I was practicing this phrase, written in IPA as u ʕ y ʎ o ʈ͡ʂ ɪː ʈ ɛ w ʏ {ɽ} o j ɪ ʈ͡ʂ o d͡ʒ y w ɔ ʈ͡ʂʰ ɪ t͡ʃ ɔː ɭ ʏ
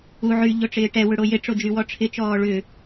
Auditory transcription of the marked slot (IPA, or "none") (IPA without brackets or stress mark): ɽ